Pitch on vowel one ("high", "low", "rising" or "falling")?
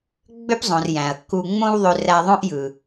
high